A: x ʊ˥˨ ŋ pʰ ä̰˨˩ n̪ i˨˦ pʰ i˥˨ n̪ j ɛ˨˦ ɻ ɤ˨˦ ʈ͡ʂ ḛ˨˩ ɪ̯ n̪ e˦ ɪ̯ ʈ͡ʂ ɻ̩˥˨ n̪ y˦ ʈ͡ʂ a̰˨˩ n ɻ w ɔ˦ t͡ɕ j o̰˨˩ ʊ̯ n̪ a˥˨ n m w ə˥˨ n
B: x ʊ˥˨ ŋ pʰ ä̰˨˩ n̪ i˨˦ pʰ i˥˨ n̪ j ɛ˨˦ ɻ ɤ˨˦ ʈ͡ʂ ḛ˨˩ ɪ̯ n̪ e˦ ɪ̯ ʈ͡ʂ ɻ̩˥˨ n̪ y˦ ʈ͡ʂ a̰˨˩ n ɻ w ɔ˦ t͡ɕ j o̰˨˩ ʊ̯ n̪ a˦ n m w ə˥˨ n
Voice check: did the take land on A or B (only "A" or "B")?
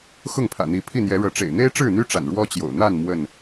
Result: A